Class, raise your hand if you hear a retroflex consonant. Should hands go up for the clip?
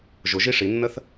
yes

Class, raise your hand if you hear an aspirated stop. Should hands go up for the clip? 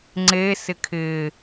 yes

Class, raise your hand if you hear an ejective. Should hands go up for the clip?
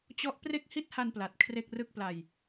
no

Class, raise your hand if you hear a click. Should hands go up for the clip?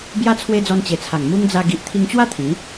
no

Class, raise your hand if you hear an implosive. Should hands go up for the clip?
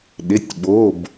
yes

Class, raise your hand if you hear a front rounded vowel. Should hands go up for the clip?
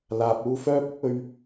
yes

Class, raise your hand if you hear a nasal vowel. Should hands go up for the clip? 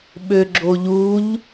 no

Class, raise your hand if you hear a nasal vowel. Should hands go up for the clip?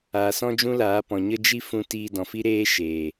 yes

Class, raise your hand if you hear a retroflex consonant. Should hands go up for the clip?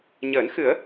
no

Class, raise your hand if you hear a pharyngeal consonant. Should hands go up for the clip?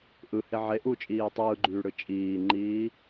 yes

